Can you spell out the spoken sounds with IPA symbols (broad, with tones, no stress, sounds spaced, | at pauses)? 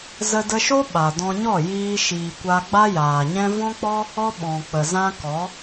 z ə˧ d ə˧ ʃ o˦ ɓ a˨ d ɔ̃˧ ɲ ɔ˦˨ j iː˧ ʃ iː˨ kʷ a˧ ɡ͡b a˦ j aː˨ ɲ ɛ̃˦ v ɔ̃˦ k͡p ɔ˦ | ɔ˦ ɓ ɔ̃˨ k͡p ə˨ z ã˦ k ɔ˨˦